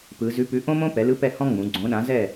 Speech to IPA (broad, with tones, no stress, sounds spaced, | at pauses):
p ɯ˩˧ z ʉ˨˥ p ʉ˨˥ ʔ õ˥ m õ˥ p ɛ˩˧ l ɯ˨˥ p ɛ˥˨ h ɔ̃˥ ŋ͡m ũ˩˧ ɡ͡ǀ õ˨˥ ɗ ã˨˥ z ɛ˥˨